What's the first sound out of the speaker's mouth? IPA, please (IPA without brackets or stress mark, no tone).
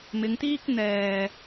m